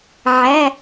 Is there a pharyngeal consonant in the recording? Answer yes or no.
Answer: yes